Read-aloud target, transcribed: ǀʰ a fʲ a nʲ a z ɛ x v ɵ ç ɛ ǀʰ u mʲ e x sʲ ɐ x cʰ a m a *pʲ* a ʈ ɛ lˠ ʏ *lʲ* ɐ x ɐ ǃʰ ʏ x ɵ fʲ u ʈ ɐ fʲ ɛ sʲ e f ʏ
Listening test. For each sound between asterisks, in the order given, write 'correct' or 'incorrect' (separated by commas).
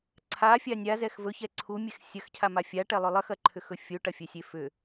incorrect, incorrect